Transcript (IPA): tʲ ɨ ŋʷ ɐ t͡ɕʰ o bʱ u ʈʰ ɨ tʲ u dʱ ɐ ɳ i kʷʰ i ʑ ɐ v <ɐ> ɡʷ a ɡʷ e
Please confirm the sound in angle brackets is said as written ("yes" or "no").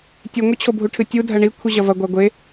yes